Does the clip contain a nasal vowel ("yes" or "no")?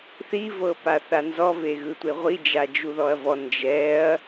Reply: no